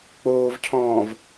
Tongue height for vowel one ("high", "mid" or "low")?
mid